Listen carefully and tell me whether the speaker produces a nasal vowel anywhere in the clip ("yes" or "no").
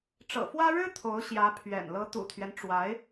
no